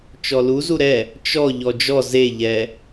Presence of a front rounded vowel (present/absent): absent